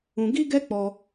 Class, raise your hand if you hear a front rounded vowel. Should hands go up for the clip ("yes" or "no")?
no